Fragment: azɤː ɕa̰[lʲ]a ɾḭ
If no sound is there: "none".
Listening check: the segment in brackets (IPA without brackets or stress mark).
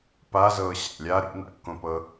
lʲ